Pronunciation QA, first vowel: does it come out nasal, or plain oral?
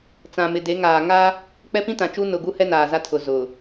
nasal